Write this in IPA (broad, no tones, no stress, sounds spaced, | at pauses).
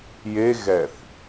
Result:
j e ɣ ɛ θ